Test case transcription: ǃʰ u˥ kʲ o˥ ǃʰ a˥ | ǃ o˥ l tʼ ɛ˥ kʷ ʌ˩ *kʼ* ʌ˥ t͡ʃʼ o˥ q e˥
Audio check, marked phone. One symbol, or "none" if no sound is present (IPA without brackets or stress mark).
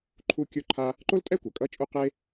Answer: kʼ